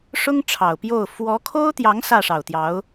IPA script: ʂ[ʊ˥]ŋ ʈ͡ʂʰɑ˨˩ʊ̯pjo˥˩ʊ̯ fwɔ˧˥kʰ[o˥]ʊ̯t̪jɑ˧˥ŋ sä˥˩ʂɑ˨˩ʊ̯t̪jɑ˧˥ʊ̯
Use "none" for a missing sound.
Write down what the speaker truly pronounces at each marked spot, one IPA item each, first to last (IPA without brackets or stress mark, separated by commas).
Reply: ʊ˥, o˥